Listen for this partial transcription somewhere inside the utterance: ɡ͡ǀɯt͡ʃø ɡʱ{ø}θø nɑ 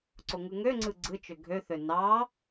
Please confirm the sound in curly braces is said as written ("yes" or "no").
yes